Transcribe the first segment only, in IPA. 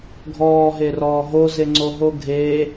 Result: ɡʱ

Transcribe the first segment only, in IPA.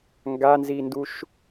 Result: ŋ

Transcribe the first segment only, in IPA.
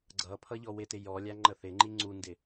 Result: ɡ͡ǀ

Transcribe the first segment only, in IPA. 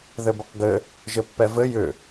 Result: ð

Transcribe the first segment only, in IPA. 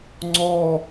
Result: ŋ͡ǀ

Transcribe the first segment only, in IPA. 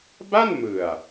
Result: b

